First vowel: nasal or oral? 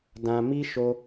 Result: nasal